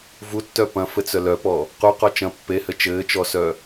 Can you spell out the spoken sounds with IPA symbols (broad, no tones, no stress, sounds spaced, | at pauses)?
v u tː œ p ɐ̃ f ɘ t͡s œ l œ p ɔ | q u q ɔ t͡ʃ ɐ̃ pː e h ɘ t͡ʃ ɘː t͡ʃ ɔ s œ